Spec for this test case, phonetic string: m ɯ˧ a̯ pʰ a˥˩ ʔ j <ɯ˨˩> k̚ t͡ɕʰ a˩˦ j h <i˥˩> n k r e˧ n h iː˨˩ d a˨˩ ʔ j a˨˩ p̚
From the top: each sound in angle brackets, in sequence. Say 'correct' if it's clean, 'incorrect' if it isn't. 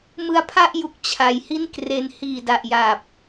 incorrect, correct

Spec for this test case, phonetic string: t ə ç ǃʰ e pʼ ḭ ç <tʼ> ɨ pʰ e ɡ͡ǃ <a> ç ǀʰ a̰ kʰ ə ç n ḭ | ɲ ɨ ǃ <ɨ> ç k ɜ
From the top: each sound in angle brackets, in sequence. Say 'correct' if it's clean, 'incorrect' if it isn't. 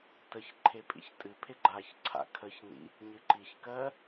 correct, correct, incorrect

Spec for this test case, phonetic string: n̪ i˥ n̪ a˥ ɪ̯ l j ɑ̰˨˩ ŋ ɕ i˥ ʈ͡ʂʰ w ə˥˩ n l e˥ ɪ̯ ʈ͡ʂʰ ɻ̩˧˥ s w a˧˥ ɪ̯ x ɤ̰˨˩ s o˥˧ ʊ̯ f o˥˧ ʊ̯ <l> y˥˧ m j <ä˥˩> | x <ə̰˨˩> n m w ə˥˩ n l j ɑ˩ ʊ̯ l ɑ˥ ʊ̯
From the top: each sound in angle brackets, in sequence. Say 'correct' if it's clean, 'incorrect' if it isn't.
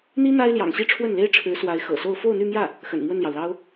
incorrect, correct, correct

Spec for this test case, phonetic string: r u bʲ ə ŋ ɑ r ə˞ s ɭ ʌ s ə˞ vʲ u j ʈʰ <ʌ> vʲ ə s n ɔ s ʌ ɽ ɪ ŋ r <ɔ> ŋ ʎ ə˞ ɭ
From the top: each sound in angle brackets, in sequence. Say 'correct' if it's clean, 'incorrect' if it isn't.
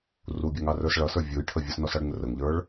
incorrect, incorrect

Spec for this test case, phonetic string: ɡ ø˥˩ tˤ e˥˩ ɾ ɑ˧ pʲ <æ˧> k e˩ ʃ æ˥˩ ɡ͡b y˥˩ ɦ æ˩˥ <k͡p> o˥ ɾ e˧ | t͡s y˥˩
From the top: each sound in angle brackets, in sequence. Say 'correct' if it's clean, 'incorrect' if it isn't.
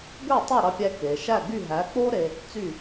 correct, correct

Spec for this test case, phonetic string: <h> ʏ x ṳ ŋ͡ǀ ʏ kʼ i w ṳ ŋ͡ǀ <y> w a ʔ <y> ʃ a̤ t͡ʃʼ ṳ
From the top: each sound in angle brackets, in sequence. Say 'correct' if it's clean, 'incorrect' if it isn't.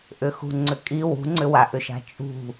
incorrect, incorrect, incorrect

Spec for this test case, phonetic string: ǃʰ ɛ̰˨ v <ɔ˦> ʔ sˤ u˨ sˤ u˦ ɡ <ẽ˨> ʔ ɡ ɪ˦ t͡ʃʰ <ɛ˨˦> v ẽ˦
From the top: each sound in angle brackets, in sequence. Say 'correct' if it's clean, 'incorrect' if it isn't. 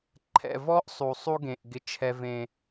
correct, correct, incorrect

